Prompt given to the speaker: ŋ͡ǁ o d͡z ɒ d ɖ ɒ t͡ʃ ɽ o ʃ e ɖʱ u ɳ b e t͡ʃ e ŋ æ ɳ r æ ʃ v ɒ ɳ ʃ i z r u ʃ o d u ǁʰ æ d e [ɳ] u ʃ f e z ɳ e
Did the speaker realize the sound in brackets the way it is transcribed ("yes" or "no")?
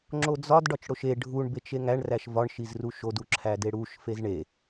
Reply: no